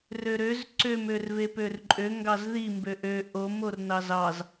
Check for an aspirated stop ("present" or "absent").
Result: absent